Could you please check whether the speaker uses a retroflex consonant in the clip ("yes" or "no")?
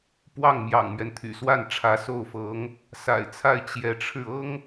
yes